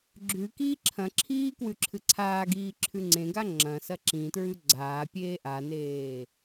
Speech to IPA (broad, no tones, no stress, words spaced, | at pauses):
ɡ͡ǁʉ kiːǁʰɐ̃ǁʰiː kwʉǁʰɨǀʰaːɡiː ǁʰʉŋ͡ǀẽɡa ŋ͡ǁɐ̃sɐ ǁĩtɹʉ ɡ͡ǀaːpʲeː ʔaneː